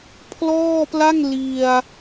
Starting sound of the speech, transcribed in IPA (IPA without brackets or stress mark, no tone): pʰ